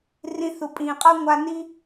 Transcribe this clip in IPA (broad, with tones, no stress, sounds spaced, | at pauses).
r ĩ˧ θ u˨ pʼ ĩː˨ qʼ ɤ˦ ŋʷ a˧ n i˦